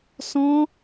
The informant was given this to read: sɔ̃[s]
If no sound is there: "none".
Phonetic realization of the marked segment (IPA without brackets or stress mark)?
none